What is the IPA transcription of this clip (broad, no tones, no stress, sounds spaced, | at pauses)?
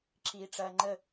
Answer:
ǁ iː ʈ͡ʂ ɐː ŋ͡ǃ ə